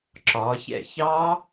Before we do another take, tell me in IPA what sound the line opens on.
ǁ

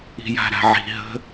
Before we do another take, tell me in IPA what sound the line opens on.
i̤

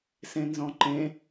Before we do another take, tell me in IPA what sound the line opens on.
s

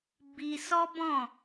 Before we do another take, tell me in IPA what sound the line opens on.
b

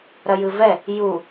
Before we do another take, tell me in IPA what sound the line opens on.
ɾ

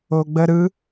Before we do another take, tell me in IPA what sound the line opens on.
o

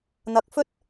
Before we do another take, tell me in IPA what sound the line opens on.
n̪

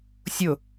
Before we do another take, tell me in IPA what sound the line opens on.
sʲ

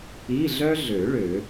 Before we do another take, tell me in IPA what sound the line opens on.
i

